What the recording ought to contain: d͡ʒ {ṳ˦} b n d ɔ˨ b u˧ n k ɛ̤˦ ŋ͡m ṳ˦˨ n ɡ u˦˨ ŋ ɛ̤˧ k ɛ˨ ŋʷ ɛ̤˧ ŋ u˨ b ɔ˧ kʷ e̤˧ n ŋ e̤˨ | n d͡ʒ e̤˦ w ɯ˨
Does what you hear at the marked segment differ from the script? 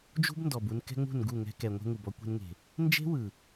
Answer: no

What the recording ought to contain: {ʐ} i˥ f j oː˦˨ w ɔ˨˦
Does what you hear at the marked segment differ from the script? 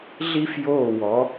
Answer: yes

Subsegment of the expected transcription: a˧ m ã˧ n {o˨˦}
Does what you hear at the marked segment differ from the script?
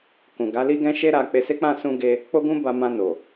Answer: yes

